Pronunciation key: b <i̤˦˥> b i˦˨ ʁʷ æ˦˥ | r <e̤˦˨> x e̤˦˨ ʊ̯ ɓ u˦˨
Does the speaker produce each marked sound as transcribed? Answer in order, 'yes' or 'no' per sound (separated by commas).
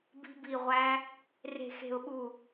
yes, yes